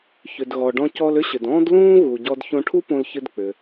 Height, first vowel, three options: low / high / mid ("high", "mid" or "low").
high